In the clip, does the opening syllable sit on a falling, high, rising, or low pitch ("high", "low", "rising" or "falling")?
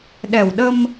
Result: low